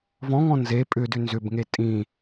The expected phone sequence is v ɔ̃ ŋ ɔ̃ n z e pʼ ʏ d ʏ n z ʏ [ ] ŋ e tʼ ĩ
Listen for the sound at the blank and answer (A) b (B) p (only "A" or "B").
A